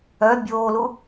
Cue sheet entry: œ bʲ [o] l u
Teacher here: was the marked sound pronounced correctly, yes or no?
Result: no